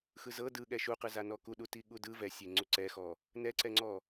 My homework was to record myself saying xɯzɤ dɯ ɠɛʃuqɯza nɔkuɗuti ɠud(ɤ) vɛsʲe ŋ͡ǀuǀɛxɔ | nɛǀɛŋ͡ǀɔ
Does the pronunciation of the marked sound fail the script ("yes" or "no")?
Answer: yes